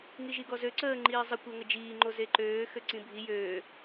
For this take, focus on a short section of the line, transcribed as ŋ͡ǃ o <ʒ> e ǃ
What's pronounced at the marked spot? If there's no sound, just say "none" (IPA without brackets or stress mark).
z